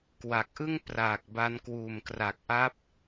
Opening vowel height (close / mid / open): open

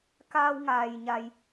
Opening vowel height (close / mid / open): open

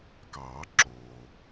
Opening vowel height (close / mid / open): open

